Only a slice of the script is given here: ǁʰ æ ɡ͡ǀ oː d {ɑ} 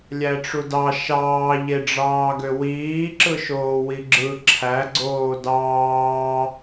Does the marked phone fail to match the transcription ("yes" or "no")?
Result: yes